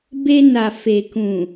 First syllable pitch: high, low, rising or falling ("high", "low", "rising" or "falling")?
high